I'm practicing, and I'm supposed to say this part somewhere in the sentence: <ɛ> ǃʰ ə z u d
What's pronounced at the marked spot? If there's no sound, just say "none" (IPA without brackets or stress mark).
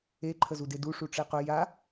e